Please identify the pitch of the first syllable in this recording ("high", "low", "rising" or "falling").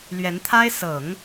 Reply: rising